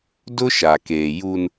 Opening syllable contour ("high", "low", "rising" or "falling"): high